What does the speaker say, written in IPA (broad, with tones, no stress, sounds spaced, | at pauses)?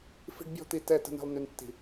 f i̤˦ ɖ bʲ ɔ̤˦ t̪ i˨ t ɛ˦˨ t ə̤˦ n i̤˨ lˠ n y˨ n tː i̤˨